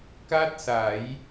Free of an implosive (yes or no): yes